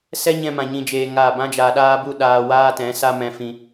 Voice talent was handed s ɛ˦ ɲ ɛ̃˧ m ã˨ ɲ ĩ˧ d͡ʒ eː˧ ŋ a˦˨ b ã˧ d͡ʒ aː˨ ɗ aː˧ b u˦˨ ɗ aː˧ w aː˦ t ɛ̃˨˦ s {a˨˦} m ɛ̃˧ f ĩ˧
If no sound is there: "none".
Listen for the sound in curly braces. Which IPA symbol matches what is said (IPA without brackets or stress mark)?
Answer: a˦